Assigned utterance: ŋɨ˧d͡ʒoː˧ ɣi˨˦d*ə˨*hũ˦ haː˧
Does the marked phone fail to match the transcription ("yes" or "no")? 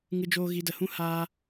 no